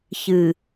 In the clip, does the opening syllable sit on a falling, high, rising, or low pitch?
low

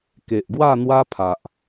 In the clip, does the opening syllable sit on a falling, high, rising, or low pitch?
low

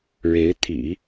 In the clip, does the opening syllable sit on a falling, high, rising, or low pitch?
rising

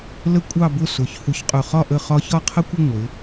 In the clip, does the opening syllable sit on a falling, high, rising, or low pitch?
high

